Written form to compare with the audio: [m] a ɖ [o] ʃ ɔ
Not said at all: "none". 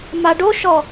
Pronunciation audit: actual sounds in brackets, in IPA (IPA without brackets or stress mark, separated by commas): m, o